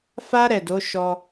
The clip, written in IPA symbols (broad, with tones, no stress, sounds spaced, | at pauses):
f a˦ ɾ ɛ˦˨ d o˨˦ ʃ ɔ˧